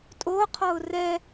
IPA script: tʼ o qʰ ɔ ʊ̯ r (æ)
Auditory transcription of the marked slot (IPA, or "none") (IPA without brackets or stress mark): ɛ